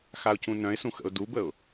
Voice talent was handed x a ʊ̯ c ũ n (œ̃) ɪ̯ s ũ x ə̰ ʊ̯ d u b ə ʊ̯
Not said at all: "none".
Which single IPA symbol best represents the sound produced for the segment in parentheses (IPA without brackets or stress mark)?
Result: œ̃